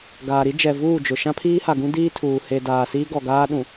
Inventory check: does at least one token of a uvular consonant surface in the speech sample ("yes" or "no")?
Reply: no